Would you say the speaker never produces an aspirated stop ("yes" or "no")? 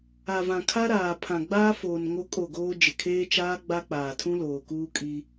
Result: no